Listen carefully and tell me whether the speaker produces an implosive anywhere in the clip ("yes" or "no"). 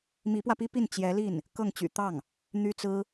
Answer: no